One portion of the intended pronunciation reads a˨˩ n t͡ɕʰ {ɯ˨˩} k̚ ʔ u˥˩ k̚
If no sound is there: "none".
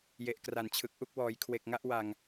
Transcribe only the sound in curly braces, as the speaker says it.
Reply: ɯ˨˩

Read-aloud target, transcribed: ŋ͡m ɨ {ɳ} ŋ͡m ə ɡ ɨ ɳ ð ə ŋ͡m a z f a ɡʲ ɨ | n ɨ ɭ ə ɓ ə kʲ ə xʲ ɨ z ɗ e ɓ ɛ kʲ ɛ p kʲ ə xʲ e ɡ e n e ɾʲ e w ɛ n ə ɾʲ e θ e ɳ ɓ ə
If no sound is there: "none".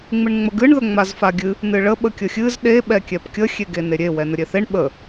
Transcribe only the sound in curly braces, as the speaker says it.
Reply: ɳ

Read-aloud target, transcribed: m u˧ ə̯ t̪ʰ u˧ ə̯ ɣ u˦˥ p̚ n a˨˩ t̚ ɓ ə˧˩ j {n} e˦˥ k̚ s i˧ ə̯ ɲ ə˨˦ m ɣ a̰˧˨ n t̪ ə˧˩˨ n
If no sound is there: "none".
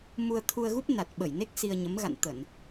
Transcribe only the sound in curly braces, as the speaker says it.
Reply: n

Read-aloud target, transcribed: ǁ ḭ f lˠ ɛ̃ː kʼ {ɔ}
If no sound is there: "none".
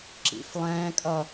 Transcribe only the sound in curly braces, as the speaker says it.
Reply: ʌ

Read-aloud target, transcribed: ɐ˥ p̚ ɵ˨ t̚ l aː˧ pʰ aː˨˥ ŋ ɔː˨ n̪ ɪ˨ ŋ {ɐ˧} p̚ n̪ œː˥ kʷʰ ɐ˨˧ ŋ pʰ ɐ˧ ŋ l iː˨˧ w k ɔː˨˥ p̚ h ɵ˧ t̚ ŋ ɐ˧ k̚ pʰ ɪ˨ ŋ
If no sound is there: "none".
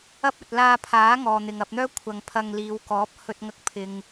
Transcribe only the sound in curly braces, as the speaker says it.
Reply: ɐ˧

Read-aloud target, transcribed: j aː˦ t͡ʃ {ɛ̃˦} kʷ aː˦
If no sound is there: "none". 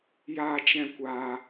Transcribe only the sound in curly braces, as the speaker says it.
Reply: ɛ̃˦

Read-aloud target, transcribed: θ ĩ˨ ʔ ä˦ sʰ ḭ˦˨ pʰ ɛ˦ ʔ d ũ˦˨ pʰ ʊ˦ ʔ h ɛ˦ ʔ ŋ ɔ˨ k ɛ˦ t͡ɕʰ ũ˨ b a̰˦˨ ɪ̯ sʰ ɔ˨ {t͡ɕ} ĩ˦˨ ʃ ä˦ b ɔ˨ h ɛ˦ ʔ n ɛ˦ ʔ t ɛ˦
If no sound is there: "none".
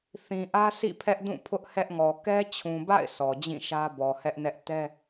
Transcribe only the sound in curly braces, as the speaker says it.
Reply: d͡ʑ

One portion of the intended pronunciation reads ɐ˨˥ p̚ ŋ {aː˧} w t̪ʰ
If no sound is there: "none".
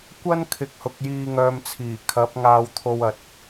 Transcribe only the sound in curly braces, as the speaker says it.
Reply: aː˧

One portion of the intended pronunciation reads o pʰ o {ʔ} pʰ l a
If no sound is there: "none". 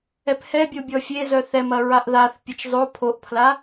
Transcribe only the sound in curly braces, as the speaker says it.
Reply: ʔ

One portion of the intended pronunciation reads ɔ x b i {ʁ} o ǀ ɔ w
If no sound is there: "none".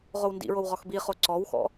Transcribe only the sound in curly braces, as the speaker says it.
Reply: χ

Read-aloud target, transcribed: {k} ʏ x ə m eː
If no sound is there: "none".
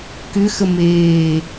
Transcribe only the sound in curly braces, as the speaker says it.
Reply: k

